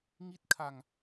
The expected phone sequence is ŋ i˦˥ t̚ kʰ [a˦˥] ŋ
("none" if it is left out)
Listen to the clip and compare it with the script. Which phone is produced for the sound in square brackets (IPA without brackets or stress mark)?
a˧